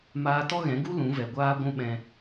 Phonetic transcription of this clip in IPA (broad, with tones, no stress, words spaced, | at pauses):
maː˧tɔ˦ɣɛ̃˨˦ɡu˦ lũ˨˦vɛ˨ɡʷaː˦ ɡʷũ˦ɓɛ̃˧